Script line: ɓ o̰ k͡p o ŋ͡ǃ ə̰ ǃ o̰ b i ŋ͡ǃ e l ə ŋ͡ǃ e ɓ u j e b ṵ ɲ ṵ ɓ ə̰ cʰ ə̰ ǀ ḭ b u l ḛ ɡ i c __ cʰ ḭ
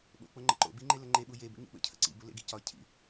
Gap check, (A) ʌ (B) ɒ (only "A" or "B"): B